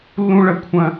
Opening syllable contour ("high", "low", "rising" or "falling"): high